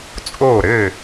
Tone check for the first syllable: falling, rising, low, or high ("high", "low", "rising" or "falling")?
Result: falling